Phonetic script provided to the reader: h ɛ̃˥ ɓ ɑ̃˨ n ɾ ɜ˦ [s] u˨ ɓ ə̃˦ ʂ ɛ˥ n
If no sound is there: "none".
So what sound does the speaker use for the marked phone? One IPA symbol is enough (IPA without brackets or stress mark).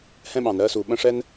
s